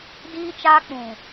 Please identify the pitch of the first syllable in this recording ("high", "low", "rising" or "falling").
high